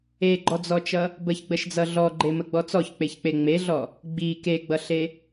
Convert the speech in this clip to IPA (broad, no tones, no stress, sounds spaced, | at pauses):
e ɡ͡ǃ ɔ d͡z ɔ t͡ʃ ʌ | b ə ç ɡ͡b ə ʃ d͡z ʌ ɮ ɔ ɡ͡ǃ e m ə ɡ͡b ɔ t͡s ɔ ç k͡p e ç k͡p e ŋ͡m e ɮ ɔ | ɡ͡b i k e ɡ͡b ʌ ɬ e